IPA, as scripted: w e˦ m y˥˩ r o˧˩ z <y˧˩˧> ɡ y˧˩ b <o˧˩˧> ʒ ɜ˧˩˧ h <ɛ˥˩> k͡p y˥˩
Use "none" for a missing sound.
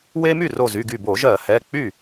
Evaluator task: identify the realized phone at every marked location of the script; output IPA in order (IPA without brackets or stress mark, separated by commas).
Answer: y˩˧˩, o˧˩˧, ɛ˩˧˩